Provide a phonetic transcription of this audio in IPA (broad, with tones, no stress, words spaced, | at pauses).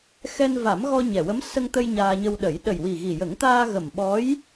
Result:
xɛ˧nva˨˩˦mɣɔ˧ ɲɛ˨˩wə˧˥m sə˧ŋt̪ə˧j ɲaː˧ɲə˧wɗə˨˩˦j ɗə˨˩jwi˨˩ɣi˨˩jə˨˩˦ŋ t̪aː˧ɣə˨˩mɓɔ˧˥j